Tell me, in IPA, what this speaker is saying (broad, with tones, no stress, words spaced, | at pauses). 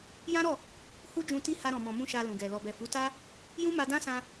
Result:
jã˦ɾɔ˦˨ | hu˦d͡ʒũ˧ ti˦ ha˧ɾɔ̃˨mɔ̃˨mũ˧ ʃa˧lũ˨ɡɛ˨ lɔ˨bɛ˨fu˨˦ta˦ | jũ˦ma˧dã˦sã˧